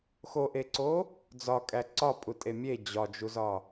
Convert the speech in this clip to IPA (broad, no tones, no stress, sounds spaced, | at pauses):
x o ʔ e ǀ o | d͡z ɒ kʼ æ ǀ ɒ pʼ u tʼ e mʲ e d͡ʑ ɒ d͡ʒ u z ɒ